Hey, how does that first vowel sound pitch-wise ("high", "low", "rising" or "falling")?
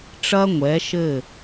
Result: high